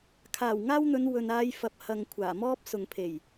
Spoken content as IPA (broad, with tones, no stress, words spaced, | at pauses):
kʰaː˨˩wŋaː˥wn̪ɵ˨˧n wɵ˨naː˧jfɐ˨p̚ hɐ˨ŋkʷʰaː˨˩mɔː˥p̚ sʊ˨ŋpʰe˨˩j